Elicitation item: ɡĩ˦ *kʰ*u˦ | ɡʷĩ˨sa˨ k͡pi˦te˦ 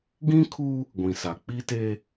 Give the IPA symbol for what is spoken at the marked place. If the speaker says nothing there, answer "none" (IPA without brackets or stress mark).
kʰ